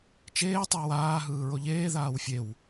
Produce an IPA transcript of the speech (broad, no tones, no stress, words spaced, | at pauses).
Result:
t͡ʃeː tˤewaː ɦɯːɹoʎeː ðaːwfʲew